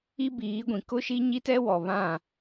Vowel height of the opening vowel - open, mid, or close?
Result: close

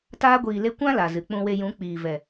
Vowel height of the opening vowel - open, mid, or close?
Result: open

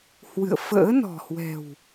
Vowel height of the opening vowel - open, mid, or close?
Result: close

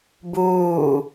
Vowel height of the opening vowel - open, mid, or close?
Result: close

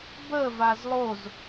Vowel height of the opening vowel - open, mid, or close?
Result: mid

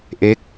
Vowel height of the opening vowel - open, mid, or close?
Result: mid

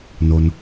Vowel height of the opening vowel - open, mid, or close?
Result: mid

